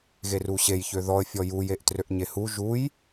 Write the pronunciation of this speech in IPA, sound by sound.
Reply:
ɣ e r u ɕ e j ç ø ð ɔ ə̯ fʲ ɔ j u j e ʔ t r ø ʔ ɲ e h u ʒ u j

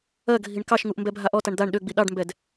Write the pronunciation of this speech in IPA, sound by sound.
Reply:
ɜ ɡʱ i ɳ k ɑ ʃ ŋ u ʔ m b ɛ bʱ a ʔ ɔ t a ɳ d̪ a ɳ ɗ ø ɡ͡b i ɗ ɑ ɖ m b ɛ d

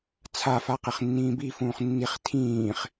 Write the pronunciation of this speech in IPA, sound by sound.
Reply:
t͡sʰ a f a q e χ nː ĩː b i f ũː χ nː i χ tʰ ĩː χ

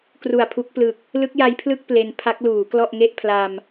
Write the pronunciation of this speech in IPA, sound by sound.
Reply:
k r u˨˩ a̯ pʰ u˦˥ k̚ p l ɯ˨˩ k̚ | l ɯ˦˥ k̚ j a˦˥ j pʰ l ɯ˥˩ k̚ p l e˧ n pʰ a˦˥ k̚ l uː˩˦ k l ɔ˥˩ ʔ ŋ e˥˩ ʔ pʰ l a˧ m

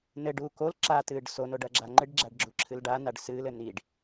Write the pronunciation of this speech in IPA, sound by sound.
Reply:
n ɘ ɖ uː k o l ǁ a t ɨː ɖ s o n o ɖ ɐ ɡ͡ǁ a ŋ͡ǃ ɨ ɖ ɡ͡ǁ a ɖ ɡ͡ǁ u ǁʰ ɨ l ɖ a n a ɖ s ɨː l ɘ n i ɖ

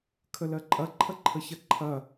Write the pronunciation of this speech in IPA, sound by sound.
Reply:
kʰ ə l ɜ ǃʼ ɐ ǃʰ ɐ ǃʰ ə ç ɐ ǃʰ ɐ

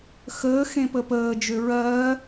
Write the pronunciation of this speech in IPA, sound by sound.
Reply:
x əː x ẽ p ə p əː d͡ʒ ø ɹ ɜː

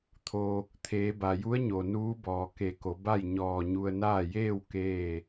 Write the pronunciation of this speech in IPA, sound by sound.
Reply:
t̪ʰ o˩ | t̪ʰ eː˩˧ b a˩ j u˧˥ ə̯ ɲ o˩ n uː˧˥ b ɔː˩ k e˧˩ k o˩˧ b a˥˨ j ɲ ɔː˧˩ ɲ u˧ ə̯ n aː˥˨ j eː˥˨ w k eː˥˨

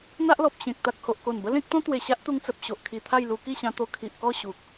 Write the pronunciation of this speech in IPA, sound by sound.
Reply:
n̪ a˦ ʔ l ɔ˨ p̚ ɕ ẽ˨ k̚ t̪ a˨ k̚ h o˨ ʔ k o˨˩ n b ə˦ l ẽ˦ k̚ t̪ ɔ̃˦ t̪ w e˨˩ ɕ a˦ ʔ t̪ u˧ ŋ t͡s ə˨ p̚ ɕ o˨ ʔ kʰ i˨˩ t̪ʰ a˥˧ j l u˧ k i˥˧ ɕ ã˧ t̪ o˧ kʰ i˨ ʔ k ɔ˥˧ ɕ u˨ k̚

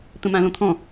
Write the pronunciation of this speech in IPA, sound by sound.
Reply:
t̪ ə̃ m ã l õ t̪ʰ ɔ̃

